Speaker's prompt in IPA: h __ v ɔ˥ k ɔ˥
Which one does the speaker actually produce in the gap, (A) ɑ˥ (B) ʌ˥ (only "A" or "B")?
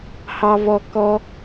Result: A